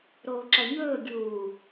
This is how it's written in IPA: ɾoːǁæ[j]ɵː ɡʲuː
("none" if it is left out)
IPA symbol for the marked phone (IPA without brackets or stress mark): ɲ